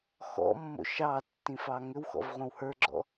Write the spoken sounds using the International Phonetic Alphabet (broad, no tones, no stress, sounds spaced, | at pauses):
x ɔ̰ mː o̰ ʃ ɑ tː ĩ f ɑ ŋ ʏ w x ɔ̰ v ʁʷ ə̃ w h ə˞ ɡ͡ǁ ɔ̰